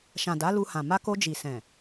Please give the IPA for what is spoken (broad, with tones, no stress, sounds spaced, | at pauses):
ʃ ã˨ d a˨˦ l u˧ h ã˨ m a˧ k o˧ d͡ʒ i˨ s ɛ̃˨